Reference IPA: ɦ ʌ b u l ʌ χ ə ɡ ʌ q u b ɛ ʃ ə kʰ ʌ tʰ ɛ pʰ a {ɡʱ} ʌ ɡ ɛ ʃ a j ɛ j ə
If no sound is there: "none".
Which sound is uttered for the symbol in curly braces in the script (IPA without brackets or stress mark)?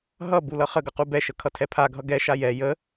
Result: ɡʱ